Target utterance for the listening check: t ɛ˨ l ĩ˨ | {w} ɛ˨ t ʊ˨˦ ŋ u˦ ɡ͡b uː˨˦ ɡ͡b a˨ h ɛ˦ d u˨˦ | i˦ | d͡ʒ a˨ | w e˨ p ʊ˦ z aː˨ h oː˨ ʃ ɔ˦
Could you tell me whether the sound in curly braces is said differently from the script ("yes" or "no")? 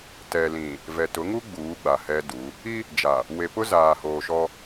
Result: yes